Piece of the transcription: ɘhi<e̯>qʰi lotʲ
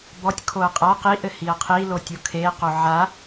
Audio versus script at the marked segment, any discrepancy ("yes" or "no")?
yes